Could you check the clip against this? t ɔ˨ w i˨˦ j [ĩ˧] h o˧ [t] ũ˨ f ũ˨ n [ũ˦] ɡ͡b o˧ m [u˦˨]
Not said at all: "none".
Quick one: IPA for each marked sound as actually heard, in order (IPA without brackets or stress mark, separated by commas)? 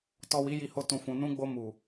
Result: i˧, t, ũ˧, u˨